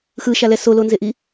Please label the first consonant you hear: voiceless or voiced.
voiceless